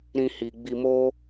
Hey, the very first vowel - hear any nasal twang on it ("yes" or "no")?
yes